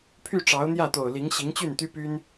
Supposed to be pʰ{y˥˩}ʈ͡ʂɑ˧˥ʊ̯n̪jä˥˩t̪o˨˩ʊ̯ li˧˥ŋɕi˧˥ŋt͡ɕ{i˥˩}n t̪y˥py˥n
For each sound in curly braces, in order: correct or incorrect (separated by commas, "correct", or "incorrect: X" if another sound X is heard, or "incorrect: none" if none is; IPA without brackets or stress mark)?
correct, incorrect: y˥˩